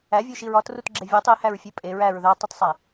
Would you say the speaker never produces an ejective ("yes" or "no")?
no